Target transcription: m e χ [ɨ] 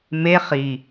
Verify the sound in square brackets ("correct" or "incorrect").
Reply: incorrect